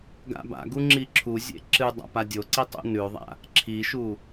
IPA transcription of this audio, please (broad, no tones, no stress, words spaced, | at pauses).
ɡa̰ba̰ɡu ŋ͡ǁiǁʰuzʲḛ ǁɨ dˤa̰padʲoǀi tˤṵnʉðˤa̰ | ǁʰiʃu